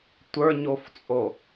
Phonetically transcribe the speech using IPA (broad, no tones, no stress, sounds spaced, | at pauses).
tʷ ə˞ ɲ o f t͡sʼ o